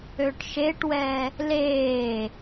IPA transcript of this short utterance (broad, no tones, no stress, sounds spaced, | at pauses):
ø ʈ ʃ e ʈ w ɛ | l eː